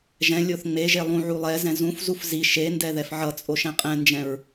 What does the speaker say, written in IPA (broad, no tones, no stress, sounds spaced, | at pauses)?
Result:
ʒ ɛ̃ lʲ o θ ŋ͡m e ʒ e lˠ ũ ʕ u lˠ ɛ z ɛ̃ z ũ f z u f z i ʃ e n d ɛ ð ɛ f ʕ ʌ t͡sʼ o ʃ ɛ̃ qʼ ɛ̃ n d͡ʒ ɛ̃ ɹ